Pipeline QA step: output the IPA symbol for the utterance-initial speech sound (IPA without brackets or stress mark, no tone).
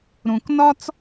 ɾ